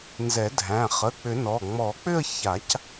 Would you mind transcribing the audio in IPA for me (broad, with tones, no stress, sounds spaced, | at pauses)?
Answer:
n z ɛ˨˩˦ dʱ æ̃˩˧˩ χ ə˩˧˩ k͡p ʏ˨˩˦ n ɔ˩˧˩ ŋ͡m ɔ˨˩˦ k͡p ʏ˥˧ ə̯ ç a˨˩˦ c